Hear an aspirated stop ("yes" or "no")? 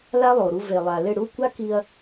no